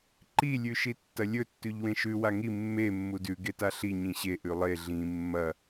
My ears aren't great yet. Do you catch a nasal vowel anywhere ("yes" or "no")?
yes